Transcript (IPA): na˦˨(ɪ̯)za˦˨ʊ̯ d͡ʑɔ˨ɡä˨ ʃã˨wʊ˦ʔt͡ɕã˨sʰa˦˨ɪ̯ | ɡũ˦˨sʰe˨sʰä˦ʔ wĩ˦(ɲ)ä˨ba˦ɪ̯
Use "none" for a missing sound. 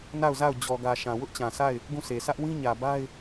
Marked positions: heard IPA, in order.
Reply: ʊ̯, ɲ

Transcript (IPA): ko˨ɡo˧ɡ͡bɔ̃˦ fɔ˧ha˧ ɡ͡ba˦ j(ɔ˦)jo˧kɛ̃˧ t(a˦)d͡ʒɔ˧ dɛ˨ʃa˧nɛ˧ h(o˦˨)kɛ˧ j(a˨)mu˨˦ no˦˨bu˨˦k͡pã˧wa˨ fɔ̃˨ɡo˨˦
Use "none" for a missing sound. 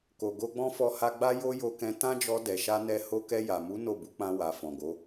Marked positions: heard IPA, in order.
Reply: o˦, ã˦, o˧, a˨

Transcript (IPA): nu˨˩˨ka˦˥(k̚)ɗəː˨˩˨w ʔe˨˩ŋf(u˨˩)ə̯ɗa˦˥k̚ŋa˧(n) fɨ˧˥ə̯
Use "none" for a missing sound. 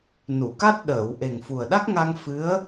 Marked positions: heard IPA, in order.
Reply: t̚, u˨˩, ŋ

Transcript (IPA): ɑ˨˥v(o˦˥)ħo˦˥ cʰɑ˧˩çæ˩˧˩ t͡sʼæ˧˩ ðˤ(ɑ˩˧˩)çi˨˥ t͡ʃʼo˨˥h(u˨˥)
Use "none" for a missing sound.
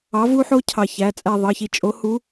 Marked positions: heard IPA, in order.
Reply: u˦˥, ɑ˩˧˩, u˨˥

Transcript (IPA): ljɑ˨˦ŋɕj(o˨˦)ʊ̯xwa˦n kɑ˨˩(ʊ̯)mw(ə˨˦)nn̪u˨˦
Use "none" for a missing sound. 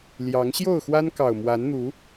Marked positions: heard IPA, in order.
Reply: o˥˨, ʊ̯, a˨˦

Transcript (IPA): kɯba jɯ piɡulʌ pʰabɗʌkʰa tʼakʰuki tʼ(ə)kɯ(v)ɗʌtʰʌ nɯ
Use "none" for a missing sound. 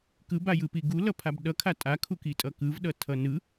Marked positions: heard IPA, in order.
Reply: ʌ, v

